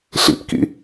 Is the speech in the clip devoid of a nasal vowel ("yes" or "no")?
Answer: yes